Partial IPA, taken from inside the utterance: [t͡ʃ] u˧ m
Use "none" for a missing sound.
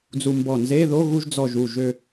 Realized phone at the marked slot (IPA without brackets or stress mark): d͡z